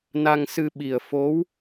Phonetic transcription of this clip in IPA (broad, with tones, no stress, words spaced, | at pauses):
na˧ŋsɨ˧ɓi˨˩ə̯ fo˧˥w